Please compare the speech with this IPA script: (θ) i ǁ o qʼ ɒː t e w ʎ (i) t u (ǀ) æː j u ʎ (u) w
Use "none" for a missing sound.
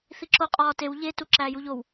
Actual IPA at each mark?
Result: θ, e, ǁ, o

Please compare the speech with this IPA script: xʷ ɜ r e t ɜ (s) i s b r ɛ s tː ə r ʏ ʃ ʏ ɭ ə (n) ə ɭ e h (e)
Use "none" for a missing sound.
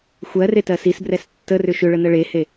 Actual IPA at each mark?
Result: s, n, e

